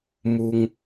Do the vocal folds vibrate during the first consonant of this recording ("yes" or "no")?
yes